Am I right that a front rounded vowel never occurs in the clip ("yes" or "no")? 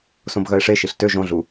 no